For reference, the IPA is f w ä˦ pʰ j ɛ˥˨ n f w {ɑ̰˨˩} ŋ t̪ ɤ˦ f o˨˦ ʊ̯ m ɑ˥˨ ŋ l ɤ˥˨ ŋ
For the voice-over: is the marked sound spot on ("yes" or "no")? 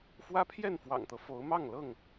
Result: yes